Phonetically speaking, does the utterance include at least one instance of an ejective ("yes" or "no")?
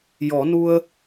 no